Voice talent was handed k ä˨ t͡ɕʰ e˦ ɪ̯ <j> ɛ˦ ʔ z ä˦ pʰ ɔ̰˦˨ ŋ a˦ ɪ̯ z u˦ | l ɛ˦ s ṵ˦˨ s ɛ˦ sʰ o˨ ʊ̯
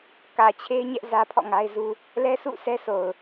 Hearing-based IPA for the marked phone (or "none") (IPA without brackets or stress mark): ɲ